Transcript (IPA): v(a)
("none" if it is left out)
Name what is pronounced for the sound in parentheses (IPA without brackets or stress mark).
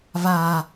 a